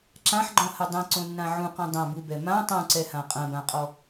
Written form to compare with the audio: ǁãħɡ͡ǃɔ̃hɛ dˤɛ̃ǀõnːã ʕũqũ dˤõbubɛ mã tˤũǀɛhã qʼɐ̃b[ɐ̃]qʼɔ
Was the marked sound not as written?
yes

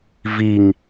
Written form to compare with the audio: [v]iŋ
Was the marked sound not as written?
no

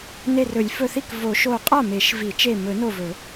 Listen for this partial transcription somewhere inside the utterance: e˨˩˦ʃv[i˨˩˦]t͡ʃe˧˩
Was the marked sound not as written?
no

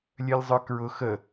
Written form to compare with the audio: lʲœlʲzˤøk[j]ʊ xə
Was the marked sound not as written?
yes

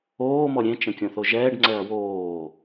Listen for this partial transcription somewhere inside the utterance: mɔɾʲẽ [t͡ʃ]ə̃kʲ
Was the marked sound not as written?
no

